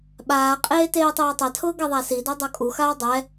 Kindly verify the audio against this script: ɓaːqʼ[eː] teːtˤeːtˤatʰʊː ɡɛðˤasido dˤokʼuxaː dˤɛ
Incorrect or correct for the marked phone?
correct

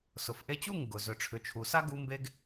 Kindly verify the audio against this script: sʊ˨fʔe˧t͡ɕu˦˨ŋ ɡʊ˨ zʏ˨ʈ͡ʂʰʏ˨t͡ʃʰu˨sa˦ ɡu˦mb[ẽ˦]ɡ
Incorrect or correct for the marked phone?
incorrect: e˦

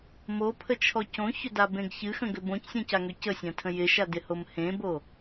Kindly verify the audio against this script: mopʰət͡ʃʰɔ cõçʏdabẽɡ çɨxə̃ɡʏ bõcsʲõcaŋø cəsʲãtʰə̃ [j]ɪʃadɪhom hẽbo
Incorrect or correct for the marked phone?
correct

